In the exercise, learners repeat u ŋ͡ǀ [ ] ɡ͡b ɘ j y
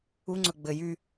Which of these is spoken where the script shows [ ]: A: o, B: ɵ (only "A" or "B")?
B